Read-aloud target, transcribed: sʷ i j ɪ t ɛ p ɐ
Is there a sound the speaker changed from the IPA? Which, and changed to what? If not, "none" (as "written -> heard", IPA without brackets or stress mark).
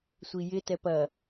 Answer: none